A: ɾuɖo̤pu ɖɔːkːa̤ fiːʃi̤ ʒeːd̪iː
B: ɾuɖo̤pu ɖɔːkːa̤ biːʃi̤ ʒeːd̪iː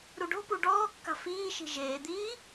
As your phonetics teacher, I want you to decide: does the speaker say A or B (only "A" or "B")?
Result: A